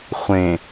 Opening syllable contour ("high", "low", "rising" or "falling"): low